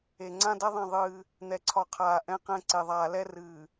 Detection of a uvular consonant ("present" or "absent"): present